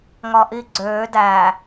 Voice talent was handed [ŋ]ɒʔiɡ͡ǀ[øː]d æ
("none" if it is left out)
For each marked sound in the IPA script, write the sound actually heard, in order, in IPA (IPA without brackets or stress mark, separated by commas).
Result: ŋ, øː